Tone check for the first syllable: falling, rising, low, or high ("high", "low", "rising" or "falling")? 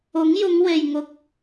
rising